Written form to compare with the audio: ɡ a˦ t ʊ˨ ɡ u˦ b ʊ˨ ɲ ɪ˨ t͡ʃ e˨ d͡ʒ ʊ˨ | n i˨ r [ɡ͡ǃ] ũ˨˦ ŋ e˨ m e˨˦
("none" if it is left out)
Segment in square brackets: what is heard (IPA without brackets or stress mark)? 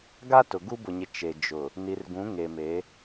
ɡ